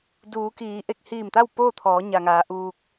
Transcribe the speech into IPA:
duː˩˧kiː˩˧ ʔe˧˩k̚hiː˧˩mt̪a˥˨w poː˥˨t̪ʰɔː˩˧ ɲa˩ŋaː˩˧ ʔuː˧k̚

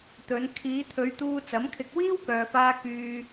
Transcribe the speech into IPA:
t̪ɵ˨˧n kʰiː˨˧t̪ʰɵ˨˧ɥt̪uː˧ t͡sɐ˨˥mkʰɪ˧k̚ wiː˥wkœː˨faː˧ kyː˧

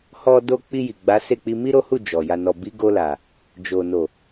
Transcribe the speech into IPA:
hɔ˧do˧ k͡pi˧ji˨ ɡ͡ba˨˦se˦˨k͡pi˧ mi˦ɾo˦hu˦˨ d͡ʒɔ˨ ja˨nɔ˨bi˨˦ ɡo˧la˨ | d͡ʒo˨ no˨

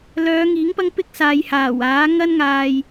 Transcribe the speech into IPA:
lœː˨˧ŋiː˨˥ŋ pɐ˥ŋpɪ˥k̚ saː˨jhaː˨˩waː˨˥ ŋɐ˥nŋaː˧j

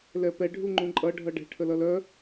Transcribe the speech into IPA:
lɛpɛ ɖʱuŋ͡ǃũǃʼʌ ɖʱʌɖɛ̤ ʈʰəlʌlœ

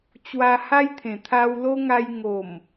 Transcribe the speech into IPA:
t͡ɕwa˧ha˦jt̪ʰẽ˨˩ t̪ʰa˧wlo˦ŋa˧j ŋo˨˩m

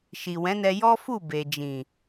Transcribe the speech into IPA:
ʃi˨wɛ̃˨˦nɛ˧ jɔ˦fu˦˨be˨ d͡ʒĩ˨

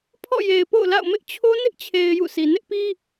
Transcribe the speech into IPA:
pʰɔ̰˦˨je˨ɪ̯po̰˦˨ʊ̯la̰˦˨ʊ̯ mɪ˦ʔt͡ɕʰo˦ nɪ˦ʔt͡ɕʰe˨ɪ̯ jṵ˦˨si˨ nɪ˦ʔpi˦

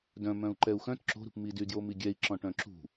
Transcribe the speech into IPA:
dœ̃ mœ̃u̯ǃɛu̯xœ̃t ǁo̤ɾṳpmidy djomiɡʲɛi̯ ǁɔ̃ʈœ̃ǁṳ

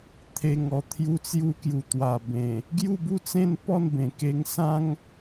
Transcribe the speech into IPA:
t̪ʰe˨˩ŋɔ˨˩ t̪ʰju˧t͡sju˧ kju˨˩t̪wa˨˩bẽ˨˩ | ɡju˥˧bu˥˧t͡sẽ˥˧n pɔ˥˧nbẽ˨˩ke˧ŋ sã˦ŋ

